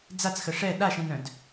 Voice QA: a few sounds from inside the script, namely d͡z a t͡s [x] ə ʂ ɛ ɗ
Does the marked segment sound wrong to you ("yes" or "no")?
no